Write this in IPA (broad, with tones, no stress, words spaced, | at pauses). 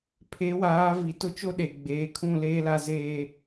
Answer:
pʰe˨˦waː˨˦vi˨ tʊ˦t͡ʃo˦ ɗe˨ɡ͡beː˨˦kʰũ˦˨ leː˦la˦zeː˦